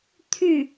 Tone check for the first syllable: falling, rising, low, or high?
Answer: falling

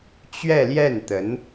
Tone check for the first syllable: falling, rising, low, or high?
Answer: falling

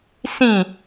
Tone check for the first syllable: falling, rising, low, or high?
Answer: falling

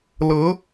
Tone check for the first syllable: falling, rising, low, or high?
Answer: rising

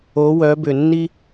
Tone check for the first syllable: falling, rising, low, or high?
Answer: rising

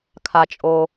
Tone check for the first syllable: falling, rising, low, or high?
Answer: low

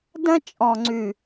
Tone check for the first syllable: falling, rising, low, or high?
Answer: high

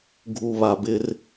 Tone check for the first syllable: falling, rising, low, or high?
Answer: low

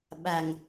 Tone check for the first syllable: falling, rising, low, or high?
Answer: low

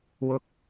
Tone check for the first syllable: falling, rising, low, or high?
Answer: low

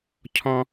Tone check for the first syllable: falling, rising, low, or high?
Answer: high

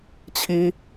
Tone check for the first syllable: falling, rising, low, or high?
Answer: high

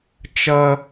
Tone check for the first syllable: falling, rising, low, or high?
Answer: high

